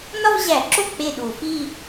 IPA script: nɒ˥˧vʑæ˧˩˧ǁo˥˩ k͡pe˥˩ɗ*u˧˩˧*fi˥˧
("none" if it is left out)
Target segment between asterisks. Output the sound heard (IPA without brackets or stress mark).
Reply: u˧˩˧